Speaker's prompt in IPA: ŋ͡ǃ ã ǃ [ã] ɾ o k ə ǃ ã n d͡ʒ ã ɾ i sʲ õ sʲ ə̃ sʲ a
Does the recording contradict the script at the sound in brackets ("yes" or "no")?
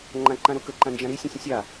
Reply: no